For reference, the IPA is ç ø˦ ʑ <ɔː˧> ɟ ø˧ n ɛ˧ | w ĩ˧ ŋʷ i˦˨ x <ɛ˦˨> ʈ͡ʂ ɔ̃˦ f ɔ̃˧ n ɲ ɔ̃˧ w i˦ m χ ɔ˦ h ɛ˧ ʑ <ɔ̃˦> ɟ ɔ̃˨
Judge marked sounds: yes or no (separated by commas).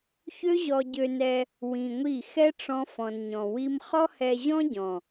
no, no, yes